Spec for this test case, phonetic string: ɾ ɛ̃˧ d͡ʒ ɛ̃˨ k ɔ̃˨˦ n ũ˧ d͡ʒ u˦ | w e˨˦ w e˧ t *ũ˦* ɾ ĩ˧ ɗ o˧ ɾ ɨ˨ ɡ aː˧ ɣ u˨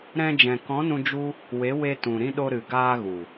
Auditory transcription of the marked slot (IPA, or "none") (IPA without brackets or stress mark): ũ˨